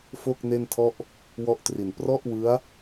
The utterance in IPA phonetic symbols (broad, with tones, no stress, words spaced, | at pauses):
fo˥˩k̚ ne˥˩ntʰɔ˥˩ʔ | wɔ˥˩ʔtri˨˩n prɔ˥˩ʔwɯ˦˥a̯